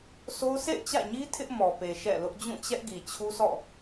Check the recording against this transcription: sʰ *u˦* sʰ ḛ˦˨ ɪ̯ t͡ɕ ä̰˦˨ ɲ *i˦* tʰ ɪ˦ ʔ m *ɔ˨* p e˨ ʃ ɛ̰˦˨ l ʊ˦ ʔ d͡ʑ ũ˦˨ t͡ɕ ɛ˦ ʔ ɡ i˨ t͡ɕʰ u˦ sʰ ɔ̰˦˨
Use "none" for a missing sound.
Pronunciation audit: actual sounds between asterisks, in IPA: o˦, i˦, ɔ˨

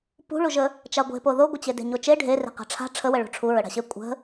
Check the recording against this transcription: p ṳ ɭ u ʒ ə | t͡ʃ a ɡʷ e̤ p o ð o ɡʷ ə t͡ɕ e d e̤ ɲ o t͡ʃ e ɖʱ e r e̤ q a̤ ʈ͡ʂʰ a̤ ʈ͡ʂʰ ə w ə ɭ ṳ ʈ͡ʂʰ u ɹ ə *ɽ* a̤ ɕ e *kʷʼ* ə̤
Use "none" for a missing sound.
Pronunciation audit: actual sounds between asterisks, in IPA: ɽ, kʷʼ

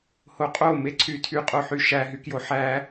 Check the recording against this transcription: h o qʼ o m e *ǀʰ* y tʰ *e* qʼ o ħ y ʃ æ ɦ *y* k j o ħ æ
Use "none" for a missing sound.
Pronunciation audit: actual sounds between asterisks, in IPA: ǀʰ, y, y

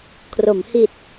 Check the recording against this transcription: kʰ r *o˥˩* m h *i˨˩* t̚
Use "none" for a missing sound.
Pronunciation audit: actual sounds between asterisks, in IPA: o˩˦, i˨˩

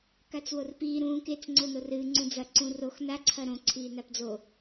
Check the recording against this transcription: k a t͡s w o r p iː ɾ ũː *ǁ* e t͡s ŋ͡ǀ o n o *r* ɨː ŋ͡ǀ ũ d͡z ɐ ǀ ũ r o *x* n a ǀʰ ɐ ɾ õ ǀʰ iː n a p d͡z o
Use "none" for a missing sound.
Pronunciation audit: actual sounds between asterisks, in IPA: k, r, x

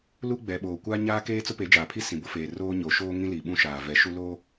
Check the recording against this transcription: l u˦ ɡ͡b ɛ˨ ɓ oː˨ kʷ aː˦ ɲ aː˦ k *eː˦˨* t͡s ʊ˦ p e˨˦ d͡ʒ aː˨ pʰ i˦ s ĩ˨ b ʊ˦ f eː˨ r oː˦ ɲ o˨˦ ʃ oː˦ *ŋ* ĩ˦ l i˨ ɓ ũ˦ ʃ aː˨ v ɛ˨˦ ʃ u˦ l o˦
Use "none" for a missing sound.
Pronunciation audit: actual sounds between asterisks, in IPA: eː˦, ŋ

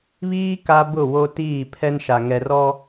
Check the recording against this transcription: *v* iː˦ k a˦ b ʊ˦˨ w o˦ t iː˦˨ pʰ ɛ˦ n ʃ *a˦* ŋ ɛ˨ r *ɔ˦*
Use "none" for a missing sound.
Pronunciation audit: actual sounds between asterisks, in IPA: β, a˨, ɔ˦

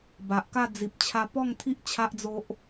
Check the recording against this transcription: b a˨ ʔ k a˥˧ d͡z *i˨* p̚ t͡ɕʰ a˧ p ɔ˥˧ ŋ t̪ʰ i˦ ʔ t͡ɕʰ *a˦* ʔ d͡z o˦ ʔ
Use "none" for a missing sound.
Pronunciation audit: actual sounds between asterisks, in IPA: i˨, a˦

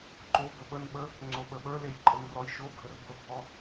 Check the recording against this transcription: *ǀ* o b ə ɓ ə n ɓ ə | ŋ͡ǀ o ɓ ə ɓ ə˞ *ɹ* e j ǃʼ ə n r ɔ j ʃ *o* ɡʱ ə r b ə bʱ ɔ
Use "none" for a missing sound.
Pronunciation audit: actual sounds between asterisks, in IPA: ǃ, l, o

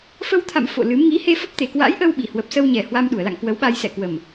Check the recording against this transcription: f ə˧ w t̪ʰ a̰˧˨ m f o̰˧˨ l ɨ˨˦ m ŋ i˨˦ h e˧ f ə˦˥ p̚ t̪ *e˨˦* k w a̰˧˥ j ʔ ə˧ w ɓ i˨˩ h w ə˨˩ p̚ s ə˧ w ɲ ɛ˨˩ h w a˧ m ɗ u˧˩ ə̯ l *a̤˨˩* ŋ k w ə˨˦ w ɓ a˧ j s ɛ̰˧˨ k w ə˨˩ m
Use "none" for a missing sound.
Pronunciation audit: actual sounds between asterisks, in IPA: e˨˩, a̰˧˨

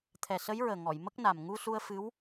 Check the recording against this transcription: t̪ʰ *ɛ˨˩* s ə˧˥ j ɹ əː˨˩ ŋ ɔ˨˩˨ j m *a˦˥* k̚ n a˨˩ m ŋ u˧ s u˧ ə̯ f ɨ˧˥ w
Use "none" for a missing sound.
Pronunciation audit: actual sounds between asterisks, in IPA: ɛ˨˩, ə˦˥

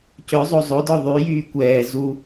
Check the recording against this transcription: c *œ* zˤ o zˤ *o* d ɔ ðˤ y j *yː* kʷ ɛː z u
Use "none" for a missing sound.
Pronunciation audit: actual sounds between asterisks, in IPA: œ, o, yː

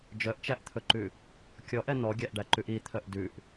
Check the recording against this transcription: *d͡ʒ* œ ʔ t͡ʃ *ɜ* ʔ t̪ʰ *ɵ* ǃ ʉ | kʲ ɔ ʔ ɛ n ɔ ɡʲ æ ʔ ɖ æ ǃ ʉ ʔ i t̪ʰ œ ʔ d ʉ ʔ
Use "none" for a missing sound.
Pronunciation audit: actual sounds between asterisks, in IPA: d͡ʒ, æ, ɵ

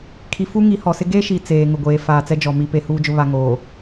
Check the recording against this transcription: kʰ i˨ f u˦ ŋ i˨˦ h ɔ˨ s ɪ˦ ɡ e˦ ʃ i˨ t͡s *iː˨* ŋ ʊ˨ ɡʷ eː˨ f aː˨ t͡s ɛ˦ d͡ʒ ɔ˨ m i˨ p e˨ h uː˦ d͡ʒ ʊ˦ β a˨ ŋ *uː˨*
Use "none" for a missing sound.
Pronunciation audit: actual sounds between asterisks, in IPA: eː˨, oː˨

